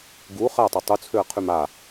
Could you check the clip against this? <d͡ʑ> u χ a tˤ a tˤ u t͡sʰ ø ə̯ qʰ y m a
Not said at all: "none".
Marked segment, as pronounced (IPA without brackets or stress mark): ɡ